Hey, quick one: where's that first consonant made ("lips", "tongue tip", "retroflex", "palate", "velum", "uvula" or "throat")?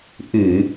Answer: throat